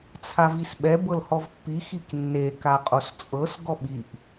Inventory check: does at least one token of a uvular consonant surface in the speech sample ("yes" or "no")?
yes